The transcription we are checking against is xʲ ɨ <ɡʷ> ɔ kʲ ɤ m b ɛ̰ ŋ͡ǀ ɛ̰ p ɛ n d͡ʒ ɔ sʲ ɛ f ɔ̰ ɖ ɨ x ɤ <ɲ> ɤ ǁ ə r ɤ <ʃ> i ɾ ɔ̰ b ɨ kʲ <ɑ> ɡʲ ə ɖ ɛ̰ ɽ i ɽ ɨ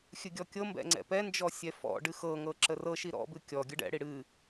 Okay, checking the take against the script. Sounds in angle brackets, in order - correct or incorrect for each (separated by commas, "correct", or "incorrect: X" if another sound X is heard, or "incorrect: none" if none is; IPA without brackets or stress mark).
incorrect: ɡʲ, incorrect: ŋ, correct, incorrect: ɔ